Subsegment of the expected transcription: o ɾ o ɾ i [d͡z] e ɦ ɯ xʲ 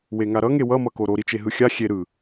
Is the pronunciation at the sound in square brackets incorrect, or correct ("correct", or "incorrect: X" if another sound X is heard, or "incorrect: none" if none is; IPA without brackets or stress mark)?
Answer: incorrect: t͡ʃ